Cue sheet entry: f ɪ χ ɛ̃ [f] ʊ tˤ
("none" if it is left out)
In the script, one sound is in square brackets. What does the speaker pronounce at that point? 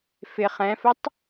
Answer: f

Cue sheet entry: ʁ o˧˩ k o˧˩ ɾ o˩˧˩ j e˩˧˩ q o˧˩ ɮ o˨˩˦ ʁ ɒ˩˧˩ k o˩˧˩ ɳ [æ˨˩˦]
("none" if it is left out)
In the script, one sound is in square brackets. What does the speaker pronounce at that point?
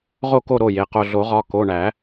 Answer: æ˨˩˦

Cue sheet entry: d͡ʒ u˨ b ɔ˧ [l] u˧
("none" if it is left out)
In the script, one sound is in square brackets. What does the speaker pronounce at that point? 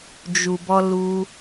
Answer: l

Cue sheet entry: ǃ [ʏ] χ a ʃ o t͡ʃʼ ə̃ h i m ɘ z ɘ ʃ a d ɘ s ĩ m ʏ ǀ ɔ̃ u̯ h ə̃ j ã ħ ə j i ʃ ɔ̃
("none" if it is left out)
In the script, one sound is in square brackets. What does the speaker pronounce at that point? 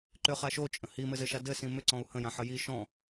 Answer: ʏ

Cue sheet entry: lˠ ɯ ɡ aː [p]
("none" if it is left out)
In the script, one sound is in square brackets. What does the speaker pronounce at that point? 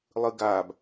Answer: b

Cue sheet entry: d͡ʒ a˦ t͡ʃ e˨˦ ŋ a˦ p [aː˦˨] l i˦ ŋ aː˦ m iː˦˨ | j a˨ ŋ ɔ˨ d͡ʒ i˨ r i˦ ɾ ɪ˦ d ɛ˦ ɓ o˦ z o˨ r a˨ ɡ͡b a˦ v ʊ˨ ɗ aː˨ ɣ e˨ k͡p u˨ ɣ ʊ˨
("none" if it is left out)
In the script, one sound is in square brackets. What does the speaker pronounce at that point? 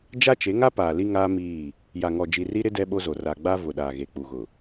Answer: aː˨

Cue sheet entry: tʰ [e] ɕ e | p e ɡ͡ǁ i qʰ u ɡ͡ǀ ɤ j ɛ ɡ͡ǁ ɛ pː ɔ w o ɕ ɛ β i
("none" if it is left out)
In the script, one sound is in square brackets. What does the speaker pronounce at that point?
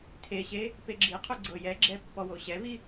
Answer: e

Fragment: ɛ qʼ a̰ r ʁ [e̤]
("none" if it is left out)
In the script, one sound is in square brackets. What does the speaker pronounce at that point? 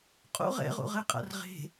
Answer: e̤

